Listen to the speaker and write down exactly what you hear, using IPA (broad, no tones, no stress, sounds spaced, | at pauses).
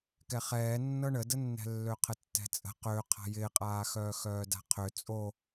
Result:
k ɛ χ ɛː nː ɤ ɳ ə d ə nː ɛ̤ lː ø qʰ ə tː ɛ̤ t͡sʼ ə̤ q ø qʰ a̤ j ɪː qʼ aː x œː x œː d a̤ qʰ ø t͡sʼ o